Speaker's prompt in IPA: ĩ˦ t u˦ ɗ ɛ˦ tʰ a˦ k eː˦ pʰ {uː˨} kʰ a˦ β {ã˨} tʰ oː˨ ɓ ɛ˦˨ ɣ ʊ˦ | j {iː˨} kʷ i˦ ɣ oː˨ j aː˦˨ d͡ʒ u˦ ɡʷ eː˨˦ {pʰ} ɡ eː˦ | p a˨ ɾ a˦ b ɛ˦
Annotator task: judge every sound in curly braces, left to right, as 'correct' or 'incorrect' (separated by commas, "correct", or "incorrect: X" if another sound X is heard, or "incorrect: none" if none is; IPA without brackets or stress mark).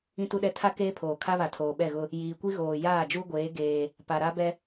incorrect: oː˨, incorrect: a˨, correct, incorrect: none